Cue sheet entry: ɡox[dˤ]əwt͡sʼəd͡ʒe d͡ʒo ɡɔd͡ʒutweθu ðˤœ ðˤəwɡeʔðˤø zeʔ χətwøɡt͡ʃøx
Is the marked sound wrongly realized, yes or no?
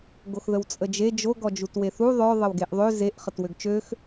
yes